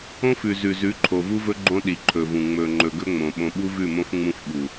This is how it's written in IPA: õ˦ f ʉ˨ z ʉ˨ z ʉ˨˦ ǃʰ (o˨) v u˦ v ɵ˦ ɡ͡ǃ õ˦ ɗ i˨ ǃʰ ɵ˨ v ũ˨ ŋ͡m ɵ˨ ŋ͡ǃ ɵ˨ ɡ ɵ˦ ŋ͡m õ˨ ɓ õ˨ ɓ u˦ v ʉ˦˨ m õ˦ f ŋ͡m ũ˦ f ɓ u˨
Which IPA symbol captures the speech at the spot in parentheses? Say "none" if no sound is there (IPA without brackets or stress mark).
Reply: o˨